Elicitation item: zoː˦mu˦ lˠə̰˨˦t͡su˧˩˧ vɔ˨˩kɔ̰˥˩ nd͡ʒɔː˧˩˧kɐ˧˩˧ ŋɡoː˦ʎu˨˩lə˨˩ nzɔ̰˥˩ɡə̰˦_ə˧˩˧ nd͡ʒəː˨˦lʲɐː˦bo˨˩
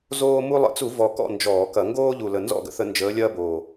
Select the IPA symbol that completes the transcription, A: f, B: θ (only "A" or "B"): B